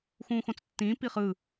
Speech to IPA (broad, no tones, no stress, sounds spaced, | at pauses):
x ũː x õ t͡s tː ĩː p i χ ɯ